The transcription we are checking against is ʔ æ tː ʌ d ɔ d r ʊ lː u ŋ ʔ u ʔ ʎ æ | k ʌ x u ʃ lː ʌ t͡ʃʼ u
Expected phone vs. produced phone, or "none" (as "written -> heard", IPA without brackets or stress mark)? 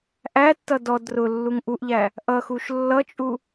k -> ʔ